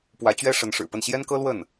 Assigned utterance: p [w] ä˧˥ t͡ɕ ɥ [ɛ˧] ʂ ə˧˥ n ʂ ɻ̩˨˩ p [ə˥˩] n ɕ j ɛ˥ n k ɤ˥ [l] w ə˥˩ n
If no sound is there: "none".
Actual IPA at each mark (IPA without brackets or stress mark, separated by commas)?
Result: w, ɛ˥, ə˥˩, l